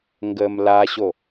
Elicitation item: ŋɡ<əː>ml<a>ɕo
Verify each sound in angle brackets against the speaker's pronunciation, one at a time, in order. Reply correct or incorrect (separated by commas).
correct, correct